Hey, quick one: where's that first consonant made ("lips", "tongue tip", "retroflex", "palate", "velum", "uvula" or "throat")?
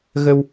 velum